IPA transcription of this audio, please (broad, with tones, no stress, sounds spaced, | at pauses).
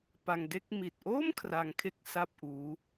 p a˧ ŋ d e˥˩ k̚ m i˨˩ t̚ ʔ oː˥˩ m kʰ r a˧ ŋ kʰ e˦˥ k̚ s a˥˩ p̚ ʔ uː˦˥